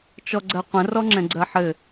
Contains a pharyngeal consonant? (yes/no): yes